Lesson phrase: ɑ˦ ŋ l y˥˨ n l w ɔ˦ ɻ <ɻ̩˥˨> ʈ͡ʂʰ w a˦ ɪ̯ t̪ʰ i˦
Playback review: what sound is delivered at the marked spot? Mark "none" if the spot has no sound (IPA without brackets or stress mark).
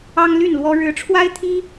ɻ̩˨˦